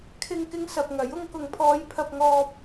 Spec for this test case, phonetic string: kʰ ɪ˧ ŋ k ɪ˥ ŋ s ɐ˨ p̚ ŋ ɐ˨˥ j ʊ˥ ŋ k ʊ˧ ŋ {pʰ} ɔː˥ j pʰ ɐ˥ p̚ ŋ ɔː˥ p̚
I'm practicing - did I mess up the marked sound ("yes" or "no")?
no